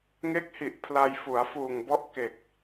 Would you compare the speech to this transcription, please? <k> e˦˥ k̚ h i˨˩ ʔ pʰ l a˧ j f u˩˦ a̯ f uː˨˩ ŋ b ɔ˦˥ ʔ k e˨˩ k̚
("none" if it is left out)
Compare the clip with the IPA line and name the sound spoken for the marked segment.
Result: ŋ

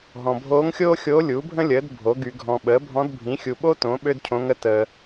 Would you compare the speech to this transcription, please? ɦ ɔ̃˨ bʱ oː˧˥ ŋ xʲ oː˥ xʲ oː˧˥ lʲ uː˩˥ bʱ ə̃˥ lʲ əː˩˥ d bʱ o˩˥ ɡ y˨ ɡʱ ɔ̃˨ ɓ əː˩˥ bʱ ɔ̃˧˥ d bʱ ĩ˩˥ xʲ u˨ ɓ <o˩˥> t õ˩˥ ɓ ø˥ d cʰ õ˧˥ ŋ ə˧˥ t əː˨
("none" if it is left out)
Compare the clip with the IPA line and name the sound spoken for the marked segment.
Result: o˥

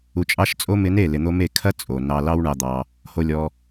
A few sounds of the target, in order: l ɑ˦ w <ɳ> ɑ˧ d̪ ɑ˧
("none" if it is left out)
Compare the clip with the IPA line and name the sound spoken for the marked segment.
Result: ɳ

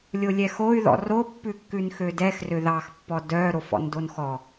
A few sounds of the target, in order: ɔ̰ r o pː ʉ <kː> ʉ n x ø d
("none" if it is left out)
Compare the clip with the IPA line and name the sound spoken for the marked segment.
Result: kː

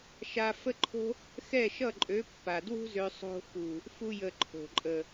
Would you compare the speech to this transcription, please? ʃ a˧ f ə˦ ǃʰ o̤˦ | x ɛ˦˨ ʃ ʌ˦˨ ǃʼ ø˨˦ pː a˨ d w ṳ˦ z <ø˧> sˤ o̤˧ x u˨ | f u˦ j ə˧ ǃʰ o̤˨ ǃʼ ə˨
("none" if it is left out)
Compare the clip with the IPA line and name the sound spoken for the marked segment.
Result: ø˧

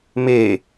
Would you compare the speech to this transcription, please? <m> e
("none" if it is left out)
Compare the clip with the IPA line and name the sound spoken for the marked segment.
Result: m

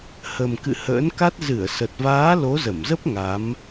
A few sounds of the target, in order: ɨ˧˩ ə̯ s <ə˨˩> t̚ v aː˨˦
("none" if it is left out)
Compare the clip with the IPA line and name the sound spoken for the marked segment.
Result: ə˨˩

